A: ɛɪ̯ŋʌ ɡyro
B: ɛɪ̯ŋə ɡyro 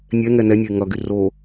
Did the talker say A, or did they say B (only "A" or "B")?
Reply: A